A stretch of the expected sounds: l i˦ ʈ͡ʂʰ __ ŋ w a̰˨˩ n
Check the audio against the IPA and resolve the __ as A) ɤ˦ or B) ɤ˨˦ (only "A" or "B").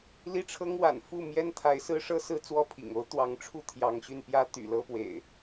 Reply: A